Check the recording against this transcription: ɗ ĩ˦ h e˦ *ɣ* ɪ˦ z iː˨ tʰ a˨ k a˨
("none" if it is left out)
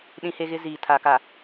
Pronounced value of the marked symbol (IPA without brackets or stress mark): ɣ